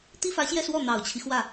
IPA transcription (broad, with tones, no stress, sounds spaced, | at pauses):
t̪ i˥ f ä˧˥ ɕ j ɛ˥˧ s w ɔ˥˩ n̪ ɑ˨˩ ʊ̯ t͡ɕʰ i˦ x w ä˥˩